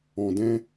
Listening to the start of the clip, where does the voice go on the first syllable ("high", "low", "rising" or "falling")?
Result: low